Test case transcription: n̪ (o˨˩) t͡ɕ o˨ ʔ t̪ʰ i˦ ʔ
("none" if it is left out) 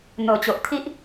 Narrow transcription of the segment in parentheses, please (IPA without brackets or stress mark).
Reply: o˨˩